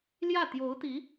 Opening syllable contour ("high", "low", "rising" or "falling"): falling